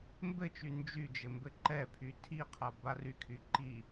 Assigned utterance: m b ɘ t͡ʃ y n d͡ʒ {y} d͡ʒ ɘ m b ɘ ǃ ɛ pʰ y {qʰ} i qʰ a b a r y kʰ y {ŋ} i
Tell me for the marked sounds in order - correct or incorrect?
correct, incorrect: tʰ, incorrect: ǃ

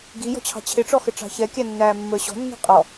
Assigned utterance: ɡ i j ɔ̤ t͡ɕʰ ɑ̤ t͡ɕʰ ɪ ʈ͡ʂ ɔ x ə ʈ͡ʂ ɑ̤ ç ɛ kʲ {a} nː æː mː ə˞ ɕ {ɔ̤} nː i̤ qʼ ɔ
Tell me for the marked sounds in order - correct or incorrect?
incorrect: æ, correct

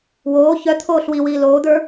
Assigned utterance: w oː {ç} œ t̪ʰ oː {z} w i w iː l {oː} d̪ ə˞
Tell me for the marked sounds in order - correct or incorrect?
correct, incorrect: ɬ, correct

